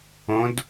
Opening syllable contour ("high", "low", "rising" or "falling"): rising